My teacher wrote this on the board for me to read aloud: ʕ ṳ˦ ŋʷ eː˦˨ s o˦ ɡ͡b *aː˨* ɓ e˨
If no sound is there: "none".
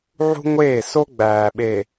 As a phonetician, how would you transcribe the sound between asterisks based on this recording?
æː˨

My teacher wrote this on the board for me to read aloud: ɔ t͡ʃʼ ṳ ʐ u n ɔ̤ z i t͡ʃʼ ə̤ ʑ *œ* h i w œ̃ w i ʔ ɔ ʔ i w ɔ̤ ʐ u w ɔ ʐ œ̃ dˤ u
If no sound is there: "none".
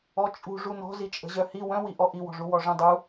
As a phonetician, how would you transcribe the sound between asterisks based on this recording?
œ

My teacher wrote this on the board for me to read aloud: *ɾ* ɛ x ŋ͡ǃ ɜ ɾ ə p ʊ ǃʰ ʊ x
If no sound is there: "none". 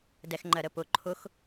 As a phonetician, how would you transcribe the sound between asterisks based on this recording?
d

